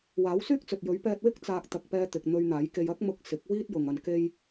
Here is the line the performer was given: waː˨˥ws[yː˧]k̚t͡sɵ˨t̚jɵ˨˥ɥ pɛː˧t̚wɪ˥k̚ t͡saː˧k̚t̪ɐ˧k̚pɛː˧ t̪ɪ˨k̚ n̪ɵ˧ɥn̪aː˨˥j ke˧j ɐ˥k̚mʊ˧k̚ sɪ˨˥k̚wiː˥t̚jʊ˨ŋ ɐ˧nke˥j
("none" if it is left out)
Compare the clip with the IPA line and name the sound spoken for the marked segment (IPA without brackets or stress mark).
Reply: yː˥